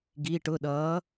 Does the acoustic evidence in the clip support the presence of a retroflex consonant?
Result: yes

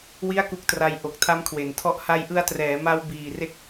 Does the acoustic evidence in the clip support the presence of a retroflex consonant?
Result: no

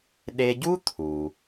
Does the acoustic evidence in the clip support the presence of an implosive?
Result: yes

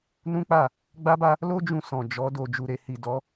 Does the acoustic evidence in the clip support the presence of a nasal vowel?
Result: yes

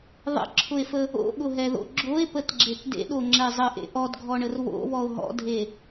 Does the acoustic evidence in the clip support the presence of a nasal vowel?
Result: no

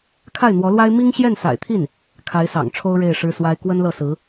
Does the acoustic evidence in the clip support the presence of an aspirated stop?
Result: yes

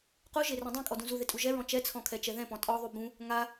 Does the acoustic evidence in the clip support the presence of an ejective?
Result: yes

